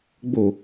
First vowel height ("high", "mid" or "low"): mid